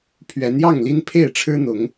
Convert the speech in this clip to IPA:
pʰ ɥ ɛ˨˦ n j ɑ˥˨ ŋ l i˦ n pʰ e˥˨ ɪ̯ ʈ͡ʂʰ ɻ̩˦ n̪ ʊ˨˦ ŋ

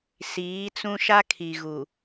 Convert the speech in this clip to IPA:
s iː˨˦ t͡s ũ˦ ʃ a˦ kʰ i˨ ɣ u˨

